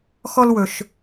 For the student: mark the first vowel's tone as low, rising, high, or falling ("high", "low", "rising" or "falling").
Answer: high